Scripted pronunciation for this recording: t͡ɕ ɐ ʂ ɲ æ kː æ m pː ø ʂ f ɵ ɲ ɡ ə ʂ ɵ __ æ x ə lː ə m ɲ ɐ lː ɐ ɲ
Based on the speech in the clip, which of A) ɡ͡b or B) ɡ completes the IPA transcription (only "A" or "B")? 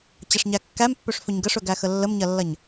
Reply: B